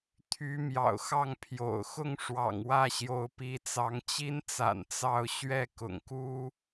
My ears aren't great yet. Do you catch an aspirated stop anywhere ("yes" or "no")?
yes